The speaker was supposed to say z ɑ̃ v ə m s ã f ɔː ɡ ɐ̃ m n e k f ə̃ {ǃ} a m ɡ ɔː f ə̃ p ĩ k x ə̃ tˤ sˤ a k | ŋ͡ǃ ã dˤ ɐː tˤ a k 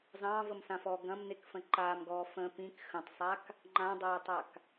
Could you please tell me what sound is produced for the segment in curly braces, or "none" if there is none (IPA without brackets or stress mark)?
ǃ